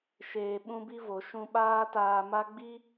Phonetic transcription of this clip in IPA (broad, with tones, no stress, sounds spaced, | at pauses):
ʃ eː˧ ɓ ũ˦ b i˦ v o˨ ʃ ũ˧ ɓ aː˦ t aː˧ m a˦ ɡ͡b i˦